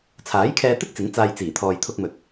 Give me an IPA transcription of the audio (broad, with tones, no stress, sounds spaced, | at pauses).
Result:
t͡sʰ aː˨˥ j kʰ ɛː˧ t̪ ɪ˥ k̚ t͡s ɪ˨˥ ŋ t͡s aː˧ j t͡s iː˨˩ t̪ʰ ɔː˨ j t̪ʰ ʊ˧ k̚ m ɵ˨ t̚